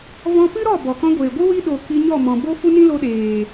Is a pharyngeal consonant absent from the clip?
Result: yes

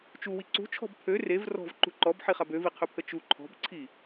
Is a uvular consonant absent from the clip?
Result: no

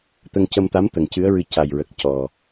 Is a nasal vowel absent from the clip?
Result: yes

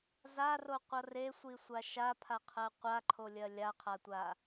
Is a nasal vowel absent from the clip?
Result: yes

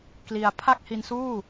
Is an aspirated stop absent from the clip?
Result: no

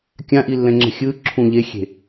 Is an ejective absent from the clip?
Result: yes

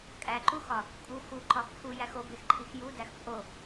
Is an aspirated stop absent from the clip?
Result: no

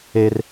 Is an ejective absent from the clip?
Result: yes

